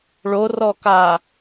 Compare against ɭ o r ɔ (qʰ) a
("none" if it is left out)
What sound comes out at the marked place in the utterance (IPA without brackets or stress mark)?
k